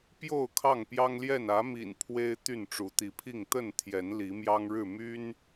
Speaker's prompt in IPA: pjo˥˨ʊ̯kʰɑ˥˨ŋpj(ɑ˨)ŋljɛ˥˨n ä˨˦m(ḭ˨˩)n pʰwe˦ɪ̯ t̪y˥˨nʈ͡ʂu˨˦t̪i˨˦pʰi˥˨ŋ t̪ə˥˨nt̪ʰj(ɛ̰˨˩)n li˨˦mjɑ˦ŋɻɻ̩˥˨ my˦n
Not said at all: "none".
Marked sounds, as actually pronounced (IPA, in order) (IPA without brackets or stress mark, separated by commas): ɑ˦, ḭ˨˩, ɛ˨˦